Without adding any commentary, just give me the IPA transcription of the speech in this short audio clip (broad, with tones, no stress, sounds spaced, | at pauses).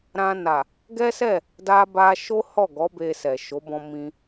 ɾ ã˧ n a˨ | ɡ ɛ˦ s ɛ˦˨ | d a˦ b a˦ ʃ o˦ h ɔ˦˨ ɡ ɔ˨˦ b e˧ s ɛ˨ ʃ o˨˦ b ɔ̃˧ m ĩ˧